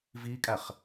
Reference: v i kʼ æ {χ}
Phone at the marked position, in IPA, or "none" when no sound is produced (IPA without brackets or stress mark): χ